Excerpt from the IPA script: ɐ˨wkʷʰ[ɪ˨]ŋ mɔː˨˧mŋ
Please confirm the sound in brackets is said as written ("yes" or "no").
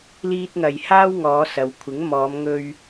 no